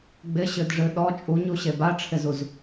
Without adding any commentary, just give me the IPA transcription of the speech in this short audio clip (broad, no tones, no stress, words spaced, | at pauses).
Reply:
ɡ͡bɪɕɨdʐɨ ɗɔ t͡ʃʼuɲuɕe baʈ͡ʂʰɪzuz